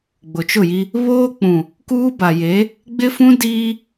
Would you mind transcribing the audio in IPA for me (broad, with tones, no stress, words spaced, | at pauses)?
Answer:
ɡ͡bʊ˨t͡ʃʊ˦˨ji˦ | βoː˦k͡pũ˨ | kuː˦ba˨je˨˦ | ɡ͡bɪ˦fũ˦ diː˦